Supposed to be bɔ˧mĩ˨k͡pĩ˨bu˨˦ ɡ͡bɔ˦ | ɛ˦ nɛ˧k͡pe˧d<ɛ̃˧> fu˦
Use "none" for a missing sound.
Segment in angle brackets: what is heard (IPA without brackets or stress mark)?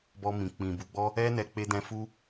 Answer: ɛ̃˧